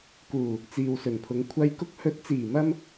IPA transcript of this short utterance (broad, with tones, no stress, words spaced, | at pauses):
kuː˨˩ | t͡siː˨wsɵ˨˩npʰʊ˨˧ŋ kʷʰɐ˧j kʊ˧k̚hɵ˨˥t̚t͡siː˨˩mɐ˧m